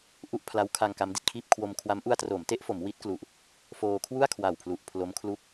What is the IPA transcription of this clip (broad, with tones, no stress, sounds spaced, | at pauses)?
ʔ u˥˩ ʔ pʰ l a˦˥ w kʰ a˧ ŋ k a˦˥ m d i˨˩ t̚ kʰ iː˥˩ p̚ kʰ w o˧ m kʰ w a˦˥ m ʔ u˧ a̯ t r oː˩˦ m t e˦˥ ʔ f o˩˦ m w i˦˥ t̚ k l u˨˩ ʔ | f oː˧ kʰ w u˥˩ a̯ kʰ w a˨˩ w pʰ l u˨˩ ʔ pʰ l o˦˥ m kʰ l u˦˥ k̚